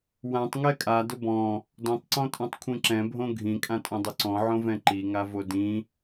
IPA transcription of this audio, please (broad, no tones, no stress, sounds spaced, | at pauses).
w ã tˤ ŋ ɛ kʼ a d ʊ b ɔ̃ | d ɔ̃ tˤ ǀ ɔ̃ tʼ ɔ̃ tˤ kʷʰ ĩ ǁ ɛ̃ bʱ õ ɡʱ ĩ kʼ ã tʼ õ dˤ ʊ ǀ ɔ̃ ʕ õ v ɛ̃ ǃ i ŋ a v o d ĩ